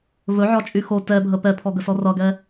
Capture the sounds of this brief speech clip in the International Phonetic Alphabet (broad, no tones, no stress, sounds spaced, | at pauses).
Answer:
v ɵ ʕ ɒ t͡ʃʼ y x o t ɛ bʱ ə p ɛ pʰ ɔ ɡ ə s ɔ r ʌ ɡ ɛ